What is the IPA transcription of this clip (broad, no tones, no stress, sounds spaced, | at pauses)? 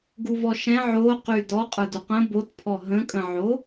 ɡ u v ɔ ʃ ɛ̃ ʕ o q y d ɔ qʼ ə˞ d u q ə̃ b o t pʰ ɔ ɦ ə̃ kʼ ə̃ ʕ o